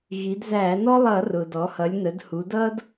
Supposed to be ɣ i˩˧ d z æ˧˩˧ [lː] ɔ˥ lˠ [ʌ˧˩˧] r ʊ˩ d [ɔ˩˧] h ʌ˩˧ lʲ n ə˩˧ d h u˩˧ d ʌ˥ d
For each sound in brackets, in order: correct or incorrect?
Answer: incorrect: n, correct, correct

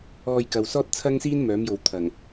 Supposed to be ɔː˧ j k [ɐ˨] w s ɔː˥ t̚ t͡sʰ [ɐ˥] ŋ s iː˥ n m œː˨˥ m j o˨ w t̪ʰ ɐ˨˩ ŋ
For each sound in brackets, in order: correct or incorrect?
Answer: correct, correct

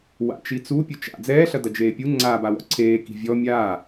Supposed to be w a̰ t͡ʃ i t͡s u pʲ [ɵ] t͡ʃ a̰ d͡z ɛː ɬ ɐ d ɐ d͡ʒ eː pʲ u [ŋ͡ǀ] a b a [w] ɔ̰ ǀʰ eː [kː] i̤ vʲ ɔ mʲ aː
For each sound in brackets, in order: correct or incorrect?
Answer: correct, correct, correct, incorrect: k

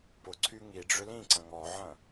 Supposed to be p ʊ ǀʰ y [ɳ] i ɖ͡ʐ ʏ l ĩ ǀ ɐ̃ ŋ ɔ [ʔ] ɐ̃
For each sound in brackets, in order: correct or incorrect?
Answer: incorrect: ŋ, incorrect: ʕ

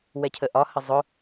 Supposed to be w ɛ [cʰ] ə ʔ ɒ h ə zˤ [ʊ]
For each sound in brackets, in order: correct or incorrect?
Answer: correct, correct

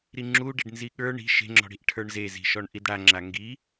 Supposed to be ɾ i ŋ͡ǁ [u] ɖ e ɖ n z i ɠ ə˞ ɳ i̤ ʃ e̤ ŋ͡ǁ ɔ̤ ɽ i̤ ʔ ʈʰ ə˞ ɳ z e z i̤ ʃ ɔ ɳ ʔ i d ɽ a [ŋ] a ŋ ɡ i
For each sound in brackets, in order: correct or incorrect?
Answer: correct, incorrect: ŋ͡ǁ

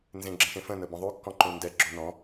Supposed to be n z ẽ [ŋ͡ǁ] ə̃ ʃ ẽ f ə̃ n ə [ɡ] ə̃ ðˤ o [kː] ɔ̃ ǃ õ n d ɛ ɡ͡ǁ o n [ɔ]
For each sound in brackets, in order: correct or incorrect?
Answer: incorrect: ɡ͡ǁ, incorrect: b, correct, incorrect: ɔ̃

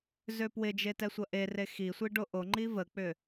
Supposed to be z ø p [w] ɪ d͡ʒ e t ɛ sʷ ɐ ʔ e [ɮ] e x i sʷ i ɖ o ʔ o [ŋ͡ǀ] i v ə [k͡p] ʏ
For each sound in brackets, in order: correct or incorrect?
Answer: correct, incorrect: r, incorrect: ŋ͡ǃ, correct

